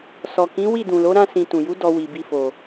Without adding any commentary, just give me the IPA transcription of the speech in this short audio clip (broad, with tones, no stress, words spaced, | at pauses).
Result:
sɔ˨kĩ˨˦ wi˦˨dũ˨lo˨˦ ɾã˧sĩ˨ tũ˨ju˨˦ dɔ˧wi˨bi˧fo˨